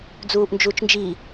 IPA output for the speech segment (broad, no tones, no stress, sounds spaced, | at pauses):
d͡z uː ʔ n d͡ʒ uː t͡ʃ n d͡ʒ i